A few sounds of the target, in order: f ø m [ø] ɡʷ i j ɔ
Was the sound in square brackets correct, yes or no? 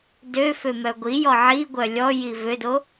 no